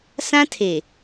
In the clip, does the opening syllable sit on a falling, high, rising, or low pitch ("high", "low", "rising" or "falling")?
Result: high